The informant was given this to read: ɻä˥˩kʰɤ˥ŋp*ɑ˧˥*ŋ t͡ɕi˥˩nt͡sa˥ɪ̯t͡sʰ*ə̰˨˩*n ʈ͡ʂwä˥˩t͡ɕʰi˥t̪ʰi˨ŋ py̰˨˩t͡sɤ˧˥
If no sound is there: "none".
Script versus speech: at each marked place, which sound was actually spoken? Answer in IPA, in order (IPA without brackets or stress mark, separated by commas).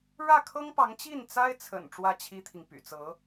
ɑ˧˥, ə̰˨˩